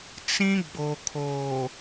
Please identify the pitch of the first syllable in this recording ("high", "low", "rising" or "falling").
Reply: high